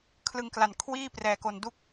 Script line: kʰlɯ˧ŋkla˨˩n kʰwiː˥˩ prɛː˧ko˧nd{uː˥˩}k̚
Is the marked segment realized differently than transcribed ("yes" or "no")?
yes